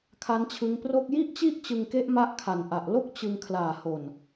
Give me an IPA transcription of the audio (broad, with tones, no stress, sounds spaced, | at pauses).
kʰ a˦˥ n t͡ɕʰ ɯ˦˥ ŋ p r o˥˩ k̚ j i˥˩ ʔ t͡ɕ i˥˩ ʔ t͡ɕ ɯ˧ ŋ k e˦˥ ʔ m a˥˩ ʔ kʰ a˨˩ n ʔ a˨˩ ʔ l o˥˩ k̚ t͡ɕ ɯ˧ ŋ kʰ l aː˨˩ h o˨˩ n